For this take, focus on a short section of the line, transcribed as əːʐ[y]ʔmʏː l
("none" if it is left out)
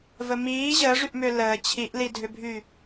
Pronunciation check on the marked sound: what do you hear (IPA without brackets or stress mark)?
y